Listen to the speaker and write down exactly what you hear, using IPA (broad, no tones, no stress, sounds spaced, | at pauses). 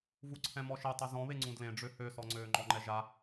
v u ǀʰ ɛ̃ m ɔ ʃ e tˤ ɛ z ɔ̃ β e ŋ͡ǀ ũ d l ẽ ɖ͡ʐ ø h ø s ɔ ŋ͡ǀ øː ŋ͡ǃ ɔ ŋ͡ǃ ɛ ʒ a